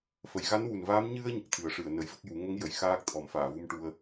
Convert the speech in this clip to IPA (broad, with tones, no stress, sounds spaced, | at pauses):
f ə˨˩˨ j ɣ a˧˥ n w u˨˩ n v aː˧˥ m ɲ ɨ˧ ə̯ ɲ ə˨˩ k̚ t̪ʰ ɨ˨˩˦ ə̯ ʂ ɨ˨˩˨ ə̯ n ə˨˩˦ j v ə˦˥ k̚ j u˨˩˦ ŋ ə˧˥ ŋ j ə˨˩˨ j x aː˦˥ k̚ t̪ʰ ɔ˨˩˦ m f aː˨˩˨ v u˧ m ʈ u˧ ə̯